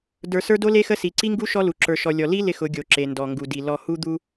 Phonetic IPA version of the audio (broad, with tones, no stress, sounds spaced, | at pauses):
d ə˞˨ s ə˞˦ d o˦ l e˦ x ə˦ s i˨ ǀ i˦ ŋ ɡ u˦ ʃ ɔ˦ l u˨ ǁ ə˞˨ ʃ ɔ˨ lʲ ɔ˨ l i˦ l ɪ˦ x ʊ˨˦ ɡʲ o˨ ǁ e˨ n d ɔ˨ ŋ ɡ u˨ d i˨ l ɔ˨ h u˦ d̪ u˦